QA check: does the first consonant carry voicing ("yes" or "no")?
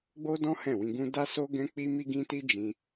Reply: yes